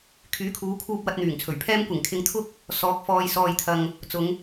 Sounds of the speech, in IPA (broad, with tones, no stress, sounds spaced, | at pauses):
kʰ yː˨˥ kʰ uː˨˧ kʰ uː˧ p̚ w ɐ˧ t̚ n̪ yː˨˩ ŋ t͡sʰ ɵ˨˩ ɥ pʰ ɛː˥ m kʷ ɪ˨˩ ŋ kʰ ɪ˨ ŋ t̪ʰ ʊ˧ k̚ | s ɔː˨˥ k̚ f ɔː˧ j s ɔː˧ j t̪ʰ ɐ˧ ŋ | t͡s ʊ˨˧ ŋ